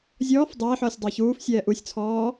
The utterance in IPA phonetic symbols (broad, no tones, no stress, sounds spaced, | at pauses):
zʲ ɔː f dˤ ɛː ħ ɔː sʲ dˤ a ç uː f sʲ ɛː ʔ u sʲ t͡sʰ ɔː